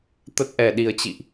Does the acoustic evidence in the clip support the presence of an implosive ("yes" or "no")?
yes